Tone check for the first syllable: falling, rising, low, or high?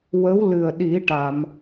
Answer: rising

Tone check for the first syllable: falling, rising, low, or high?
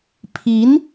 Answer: rising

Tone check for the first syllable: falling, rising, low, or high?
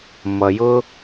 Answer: low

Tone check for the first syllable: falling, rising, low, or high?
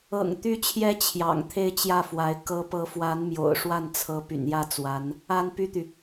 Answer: low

